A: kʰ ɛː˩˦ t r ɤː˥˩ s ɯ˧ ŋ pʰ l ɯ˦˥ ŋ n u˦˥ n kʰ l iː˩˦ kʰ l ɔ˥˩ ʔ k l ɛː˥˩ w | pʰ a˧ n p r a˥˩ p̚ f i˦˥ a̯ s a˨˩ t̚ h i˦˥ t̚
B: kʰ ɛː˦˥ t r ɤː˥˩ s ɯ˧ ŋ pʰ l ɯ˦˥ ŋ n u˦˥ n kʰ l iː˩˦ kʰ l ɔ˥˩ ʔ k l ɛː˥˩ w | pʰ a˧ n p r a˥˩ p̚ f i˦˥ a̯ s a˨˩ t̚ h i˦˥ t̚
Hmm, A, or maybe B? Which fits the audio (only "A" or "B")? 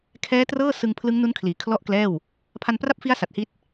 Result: B